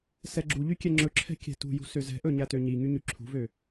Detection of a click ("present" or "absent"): present